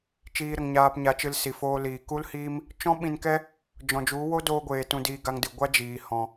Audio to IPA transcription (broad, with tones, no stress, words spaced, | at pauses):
t͡ʃiː˧ɾə˨ŋɲaː˧pɲa˧ t͡ʃɨ˧lsi˨foː˧liː˨ ku˦lhiː˦m | t͡ʃɔ̃˦ɓĩ˧nkɛ˦ | d͡ʒɔ̃˨d͡ʒu˨˦ wo˦doː˧ɡʷeː˨ tũ˧diː˧ɡa˧ŋdɨ˨ ɡʷa˦d͡ʒiː˨ hɔ̃˧